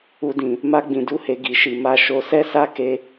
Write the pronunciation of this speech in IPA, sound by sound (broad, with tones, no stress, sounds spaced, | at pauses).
u˦ d ĩ˧ | m a˦ ɡ͡b ĩ˧ d u˦ h e˧ ɡ i˧ ʃ i˧ m a˦ ʃ o˧ s ɛ˦ s a˦ k e˦